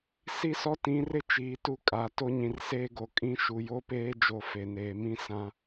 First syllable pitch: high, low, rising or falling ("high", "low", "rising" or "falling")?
falling